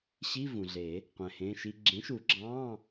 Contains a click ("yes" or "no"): yes